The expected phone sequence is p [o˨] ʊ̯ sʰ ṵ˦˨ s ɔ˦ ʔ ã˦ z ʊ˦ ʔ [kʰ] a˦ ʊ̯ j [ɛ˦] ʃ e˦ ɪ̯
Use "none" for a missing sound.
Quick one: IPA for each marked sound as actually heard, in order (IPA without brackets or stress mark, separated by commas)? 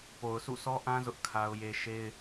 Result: o˨, kʰ, e˦